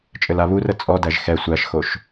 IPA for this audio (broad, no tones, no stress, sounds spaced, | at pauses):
t͡ʃʼ ɘ l a β u r ə t͡sʼ ɔ d æ ʒ x ɛ sʷ æ ʃ x o ʃ